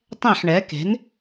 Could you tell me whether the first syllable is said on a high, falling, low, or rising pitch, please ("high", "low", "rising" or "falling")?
falling